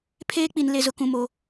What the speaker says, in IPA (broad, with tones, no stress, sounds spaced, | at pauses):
pʰ eː˦ k͡p i˨ n l e˨ z ʊ˨ k ũ˨ m oː˨